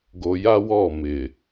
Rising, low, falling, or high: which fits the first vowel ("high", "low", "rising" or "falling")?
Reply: low